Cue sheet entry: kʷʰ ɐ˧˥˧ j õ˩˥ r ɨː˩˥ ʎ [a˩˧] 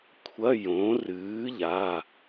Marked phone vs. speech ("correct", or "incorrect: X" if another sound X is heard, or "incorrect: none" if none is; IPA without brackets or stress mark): incorrect: a˩˧˩